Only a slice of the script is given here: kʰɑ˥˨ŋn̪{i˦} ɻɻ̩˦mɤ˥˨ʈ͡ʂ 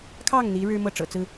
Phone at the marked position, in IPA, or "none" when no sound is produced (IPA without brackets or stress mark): i˨˦